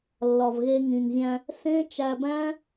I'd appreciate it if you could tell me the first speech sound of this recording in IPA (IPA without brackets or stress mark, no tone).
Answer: lː